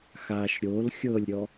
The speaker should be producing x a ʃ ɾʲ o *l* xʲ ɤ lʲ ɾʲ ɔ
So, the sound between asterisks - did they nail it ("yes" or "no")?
yes